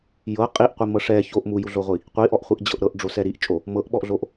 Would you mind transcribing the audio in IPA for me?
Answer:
j ɤ qʼ i ʔ qʷ i m ɤ ʂ ɛ ç o ʔ m u j u ɮ o ʁʷ i | qʷ i ʔ ɔ ʔ χʷ i ʔ d͡ʑ ɤ ʔ ɾ ɤ ʔ ɖ͡ʐ o s ɛ ɾ i ʔ t͡ʃʼ o | m ɤ ʔ ɓ ɔ ʔ ɮ o ʔ

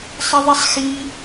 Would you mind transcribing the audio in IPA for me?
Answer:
sˤ ɪ ðˤ i sˤ x i

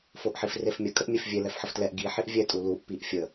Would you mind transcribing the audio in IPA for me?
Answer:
f o ʔ ħ i f r e f mʲ ə kʼ ə ʔ mʲ e f vʲ e l ɛ f ħ ə f t l ɛ ʔ ɡ i ħ i ʔ vʲ ɛ tʼ u l u ʔ p i ʔ fʲ ə

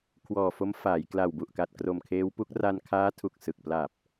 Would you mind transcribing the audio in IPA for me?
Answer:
kʰ w ɔː˨˩ f o˦˥ m f aː˩˦ j k l a˨˩ w b u˨˩ ʔ k a˨˩ t̚ k r o˨˩ m kʰ eː˦˥ w p u˦˥ k̚ r a˧ n kʰ aː˦˥ tʰ u˨˩ k̚ s ɯ˨˩ k̚ p l a˨˩ p̚

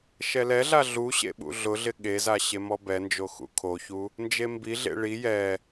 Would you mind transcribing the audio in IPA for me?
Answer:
ʃ ɛ l ɛ ɮ a ɮ u ɕ ḛ ɓ ṵ ɮ ʊ ɮ ɪ ɠ e z a ɕ e m ɔ b ɛ n d͡ʒ o x ṵ kʰ o ç u | n d͡ʒ e m b i ɮ ḛ ɭ i j ɛ

